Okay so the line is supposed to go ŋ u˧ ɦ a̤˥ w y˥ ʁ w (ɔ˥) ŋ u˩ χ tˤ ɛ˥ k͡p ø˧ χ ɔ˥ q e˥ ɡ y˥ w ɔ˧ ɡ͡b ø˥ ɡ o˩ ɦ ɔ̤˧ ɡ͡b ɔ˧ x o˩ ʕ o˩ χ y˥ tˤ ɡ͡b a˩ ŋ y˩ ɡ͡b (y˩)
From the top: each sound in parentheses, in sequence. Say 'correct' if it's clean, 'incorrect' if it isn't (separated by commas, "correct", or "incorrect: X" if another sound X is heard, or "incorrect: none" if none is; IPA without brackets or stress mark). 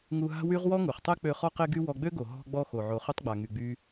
correct, incorrect: y˧